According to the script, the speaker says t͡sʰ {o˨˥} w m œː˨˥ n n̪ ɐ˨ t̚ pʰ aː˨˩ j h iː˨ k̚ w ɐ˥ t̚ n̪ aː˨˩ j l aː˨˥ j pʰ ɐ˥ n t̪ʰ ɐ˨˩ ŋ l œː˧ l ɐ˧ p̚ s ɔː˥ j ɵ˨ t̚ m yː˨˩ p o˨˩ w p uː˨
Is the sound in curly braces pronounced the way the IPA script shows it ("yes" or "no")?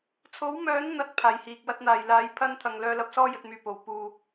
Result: yes